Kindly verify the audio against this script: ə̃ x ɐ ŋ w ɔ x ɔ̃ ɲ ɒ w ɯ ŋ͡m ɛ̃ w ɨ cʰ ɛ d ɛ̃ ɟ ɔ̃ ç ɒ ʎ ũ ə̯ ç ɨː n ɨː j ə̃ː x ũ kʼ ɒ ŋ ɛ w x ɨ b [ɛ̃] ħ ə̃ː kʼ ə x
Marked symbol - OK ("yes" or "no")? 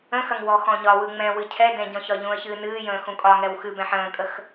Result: yes